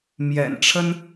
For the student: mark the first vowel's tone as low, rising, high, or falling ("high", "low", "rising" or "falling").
low